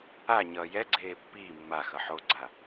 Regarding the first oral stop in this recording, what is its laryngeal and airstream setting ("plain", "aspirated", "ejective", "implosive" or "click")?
click